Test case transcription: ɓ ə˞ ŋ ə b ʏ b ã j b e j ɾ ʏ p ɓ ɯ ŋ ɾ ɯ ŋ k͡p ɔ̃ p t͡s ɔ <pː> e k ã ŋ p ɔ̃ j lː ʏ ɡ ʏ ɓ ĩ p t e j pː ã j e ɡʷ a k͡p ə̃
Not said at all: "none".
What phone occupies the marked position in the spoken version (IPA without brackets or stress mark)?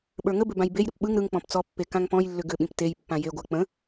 pː